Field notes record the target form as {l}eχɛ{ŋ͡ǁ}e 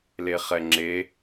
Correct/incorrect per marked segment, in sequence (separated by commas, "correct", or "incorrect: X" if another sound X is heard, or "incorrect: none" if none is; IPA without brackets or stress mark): correct, correct